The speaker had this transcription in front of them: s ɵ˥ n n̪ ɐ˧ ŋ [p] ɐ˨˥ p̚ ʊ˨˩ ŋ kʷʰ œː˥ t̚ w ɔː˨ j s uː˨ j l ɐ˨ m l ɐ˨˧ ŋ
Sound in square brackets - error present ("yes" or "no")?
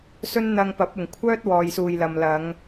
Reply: no